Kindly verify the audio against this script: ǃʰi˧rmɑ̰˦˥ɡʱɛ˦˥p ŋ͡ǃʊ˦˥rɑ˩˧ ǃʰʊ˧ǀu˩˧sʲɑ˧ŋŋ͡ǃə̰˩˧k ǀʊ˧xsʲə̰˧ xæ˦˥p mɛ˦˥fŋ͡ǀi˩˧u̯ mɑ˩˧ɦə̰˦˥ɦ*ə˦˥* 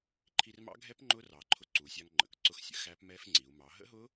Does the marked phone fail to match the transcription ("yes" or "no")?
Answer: yes